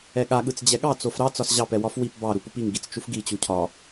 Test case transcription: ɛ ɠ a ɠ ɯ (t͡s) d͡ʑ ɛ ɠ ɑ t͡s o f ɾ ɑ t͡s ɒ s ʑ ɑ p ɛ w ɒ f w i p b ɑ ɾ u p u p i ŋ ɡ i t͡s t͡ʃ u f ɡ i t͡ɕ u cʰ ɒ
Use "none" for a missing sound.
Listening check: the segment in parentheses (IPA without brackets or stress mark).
t͡s